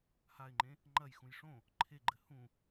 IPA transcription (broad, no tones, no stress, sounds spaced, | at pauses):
h a ɪ̯ ŋ͡ǃ ẽ | ŋ͡ǃ ɐ j x ũ j ʂ õ | ǃʰ e ɡ͡ǃ ɘ h ũ